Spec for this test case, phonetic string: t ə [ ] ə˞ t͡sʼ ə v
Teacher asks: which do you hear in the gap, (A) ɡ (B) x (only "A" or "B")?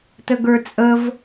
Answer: A